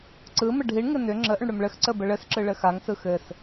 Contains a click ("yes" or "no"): yes